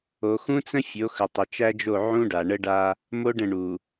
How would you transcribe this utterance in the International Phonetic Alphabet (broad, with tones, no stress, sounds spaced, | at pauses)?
o˨ x ũ˦ t͡s ə̃˦ fʲ o˨˦ x ə˨ tˤ ə˨ t͡ʃ æ˦ d͡ʒ o˦˨ ʕ ũ˦ ɖ a˨ ɳ ə˦ ɖ a˦ | m o˦ ɖ ə̃˦˨ ɳ u˨